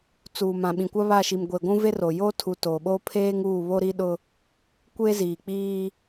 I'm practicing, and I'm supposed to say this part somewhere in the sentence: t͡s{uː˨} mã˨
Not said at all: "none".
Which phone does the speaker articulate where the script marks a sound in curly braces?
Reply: uː˨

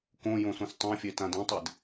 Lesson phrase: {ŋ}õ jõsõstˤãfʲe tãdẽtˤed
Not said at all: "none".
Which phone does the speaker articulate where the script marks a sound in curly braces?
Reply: k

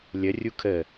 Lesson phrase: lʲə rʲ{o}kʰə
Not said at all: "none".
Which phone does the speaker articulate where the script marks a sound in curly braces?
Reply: u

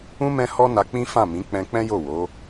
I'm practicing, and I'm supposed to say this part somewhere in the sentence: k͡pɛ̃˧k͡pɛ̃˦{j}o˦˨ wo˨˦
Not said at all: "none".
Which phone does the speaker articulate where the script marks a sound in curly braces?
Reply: j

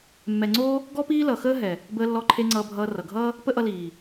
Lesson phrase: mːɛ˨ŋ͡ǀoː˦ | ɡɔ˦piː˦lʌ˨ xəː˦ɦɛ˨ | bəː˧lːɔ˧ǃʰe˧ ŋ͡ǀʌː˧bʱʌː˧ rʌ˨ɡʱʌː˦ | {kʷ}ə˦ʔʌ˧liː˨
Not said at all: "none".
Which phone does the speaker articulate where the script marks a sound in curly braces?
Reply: p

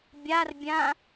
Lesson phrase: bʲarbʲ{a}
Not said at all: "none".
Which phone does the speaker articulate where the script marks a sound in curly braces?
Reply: ã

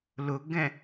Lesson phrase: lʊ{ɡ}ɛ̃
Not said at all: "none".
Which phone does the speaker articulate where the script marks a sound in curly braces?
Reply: ɡ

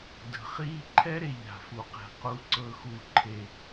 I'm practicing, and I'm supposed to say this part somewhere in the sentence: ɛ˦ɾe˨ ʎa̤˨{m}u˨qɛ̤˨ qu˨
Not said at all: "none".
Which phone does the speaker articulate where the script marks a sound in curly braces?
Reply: f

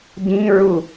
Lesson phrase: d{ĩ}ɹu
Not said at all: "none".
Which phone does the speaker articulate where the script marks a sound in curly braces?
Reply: ĩ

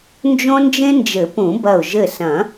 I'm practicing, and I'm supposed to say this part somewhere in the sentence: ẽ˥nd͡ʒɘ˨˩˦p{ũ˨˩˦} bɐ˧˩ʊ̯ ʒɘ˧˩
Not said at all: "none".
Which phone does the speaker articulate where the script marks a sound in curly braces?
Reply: ũ˨˩˦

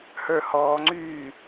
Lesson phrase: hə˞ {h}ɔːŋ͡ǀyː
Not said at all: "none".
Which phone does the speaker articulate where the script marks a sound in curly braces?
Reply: h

